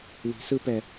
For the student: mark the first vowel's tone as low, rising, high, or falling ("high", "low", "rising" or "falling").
rising